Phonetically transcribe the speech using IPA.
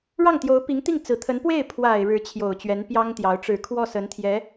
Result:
ɻ ɑ˥˩ ŋ t̪ j o˧˥ ʊ̯ p i˧˥ ŋ t̪ i˥˩ ŋ t͡s ɹ̩˨˩ t̪ʰ ə˧˥ n p w e˥˩ ɪ̯ pʰ w a˨˩ ɪ̯ ɻ ɻ̩˧˥ t͡ɕʰ j o˨˩ ʊ̯ t͡ɕ ɥ ɛ˧˥ n p j ɑ˥ ŋ t̪ j ɑ˧˥ ʊ̯ ʈ͡ʂ ɻ̩˨˩ kʰ w ɔ˥˩ s ə˧˥ n t̪ʰ j ɛ˧˥

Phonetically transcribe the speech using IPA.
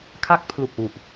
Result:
kʰ a˦˥ k̚ pʰ l u˨˩ k̚ w u˨˩ ʔ

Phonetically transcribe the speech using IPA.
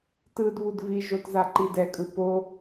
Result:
t ɯ d β u d v i ʒ o t z a ǃ i d ɛ kʼ ɯ p o

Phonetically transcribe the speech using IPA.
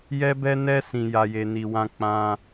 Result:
j ɛ˦ b ɛ˦ n ɛ˦ s ĩ˧ j a˧ j e˧ n i˧ w ã˧ k͡p ã˧

